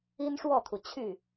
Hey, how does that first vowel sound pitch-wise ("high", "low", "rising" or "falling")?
high